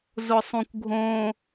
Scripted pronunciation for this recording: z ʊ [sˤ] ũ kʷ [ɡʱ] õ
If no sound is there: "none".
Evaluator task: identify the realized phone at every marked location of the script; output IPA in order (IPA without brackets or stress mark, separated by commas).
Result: sˤ, ɡʱ